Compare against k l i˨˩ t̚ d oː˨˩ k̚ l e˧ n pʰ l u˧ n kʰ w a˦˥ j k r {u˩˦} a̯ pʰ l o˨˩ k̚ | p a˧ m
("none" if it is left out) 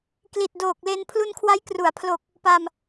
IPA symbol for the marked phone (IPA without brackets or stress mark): u˩˦